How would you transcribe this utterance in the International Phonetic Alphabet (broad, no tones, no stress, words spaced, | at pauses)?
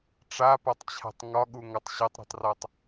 ʈ͡ʂapatˤt͡ɕʰa̤tˤ ŋɒɠuŋɒtˤ ɕɐtˤɾo̤tˤrɒtˤ